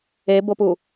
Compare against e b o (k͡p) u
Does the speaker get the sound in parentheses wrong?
yes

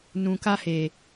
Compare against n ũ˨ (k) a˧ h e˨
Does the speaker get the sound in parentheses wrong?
no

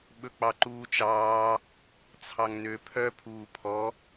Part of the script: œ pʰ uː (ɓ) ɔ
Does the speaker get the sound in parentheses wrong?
yes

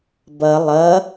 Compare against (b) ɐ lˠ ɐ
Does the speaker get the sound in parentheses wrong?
no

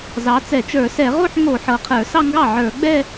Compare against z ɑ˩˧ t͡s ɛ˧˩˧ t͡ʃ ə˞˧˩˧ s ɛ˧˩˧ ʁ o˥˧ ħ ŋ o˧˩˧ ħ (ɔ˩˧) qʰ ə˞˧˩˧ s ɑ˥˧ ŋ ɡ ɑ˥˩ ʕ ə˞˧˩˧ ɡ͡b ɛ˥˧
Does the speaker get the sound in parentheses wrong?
yes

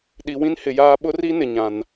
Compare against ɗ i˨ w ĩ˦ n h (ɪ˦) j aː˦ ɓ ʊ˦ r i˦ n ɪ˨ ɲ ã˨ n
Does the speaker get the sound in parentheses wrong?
yes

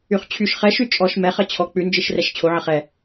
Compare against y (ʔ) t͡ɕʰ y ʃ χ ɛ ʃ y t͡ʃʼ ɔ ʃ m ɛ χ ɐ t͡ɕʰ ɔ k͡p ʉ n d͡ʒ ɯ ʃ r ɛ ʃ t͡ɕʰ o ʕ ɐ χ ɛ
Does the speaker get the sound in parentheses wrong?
yes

